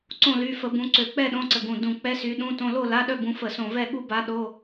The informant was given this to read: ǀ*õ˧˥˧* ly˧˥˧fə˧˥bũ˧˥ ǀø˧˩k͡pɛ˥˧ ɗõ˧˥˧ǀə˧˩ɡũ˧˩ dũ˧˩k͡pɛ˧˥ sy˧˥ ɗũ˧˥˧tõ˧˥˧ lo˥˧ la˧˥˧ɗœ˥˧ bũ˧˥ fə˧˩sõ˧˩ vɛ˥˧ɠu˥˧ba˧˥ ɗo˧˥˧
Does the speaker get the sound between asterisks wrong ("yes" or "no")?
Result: yes